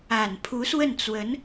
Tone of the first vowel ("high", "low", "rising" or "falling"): low